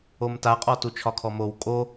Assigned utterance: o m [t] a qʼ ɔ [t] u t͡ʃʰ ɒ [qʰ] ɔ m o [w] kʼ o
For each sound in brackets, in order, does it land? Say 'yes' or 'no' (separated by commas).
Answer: yes, yes, no, yes